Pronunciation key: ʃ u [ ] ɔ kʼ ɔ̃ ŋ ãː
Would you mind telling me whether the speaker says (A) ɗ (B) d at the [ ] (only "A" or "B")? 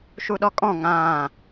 A